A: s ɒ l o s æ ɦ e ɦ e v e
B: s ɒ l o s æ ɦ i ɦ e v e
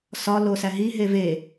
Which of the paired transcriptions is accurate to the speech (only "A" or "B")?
B